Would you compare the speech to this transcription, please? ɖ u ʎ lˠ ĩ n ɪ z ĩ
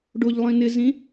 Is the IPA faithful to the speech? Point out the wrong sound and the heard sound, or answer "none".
u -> o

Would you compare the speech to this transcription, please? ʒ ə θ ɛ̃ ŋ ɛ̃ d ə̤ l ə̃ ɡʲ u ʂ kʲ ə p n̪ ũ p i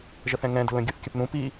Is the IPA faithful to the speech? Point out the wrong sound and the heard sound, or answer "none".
ʂ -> θ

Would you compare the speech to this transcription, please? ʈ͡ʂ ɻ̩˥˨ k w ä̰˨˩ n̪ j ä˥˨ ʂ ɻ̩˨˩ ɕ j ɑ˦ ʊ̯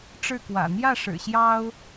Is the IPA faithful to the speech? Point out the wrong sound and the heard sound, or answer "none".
none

